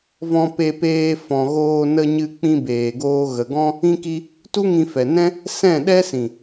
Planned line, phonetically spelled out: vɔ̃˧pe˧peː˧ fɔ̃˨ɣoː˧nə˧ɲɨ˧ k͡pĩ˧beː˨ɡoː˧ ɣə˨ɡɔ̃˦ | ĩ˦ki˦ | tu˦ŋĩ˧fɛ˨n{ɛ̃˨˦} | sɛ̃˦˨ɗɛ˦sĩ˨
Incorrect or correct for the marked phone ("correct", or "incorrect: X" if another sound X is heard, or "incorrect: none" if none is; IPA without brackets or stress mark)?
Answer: incorrect: ɛ̃˦